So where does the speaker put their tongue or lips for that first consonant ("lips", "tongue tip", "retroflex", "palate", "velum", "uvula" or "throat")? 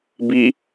lips